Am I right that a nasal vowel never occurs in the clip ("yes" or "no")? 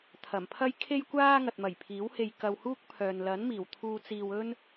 yes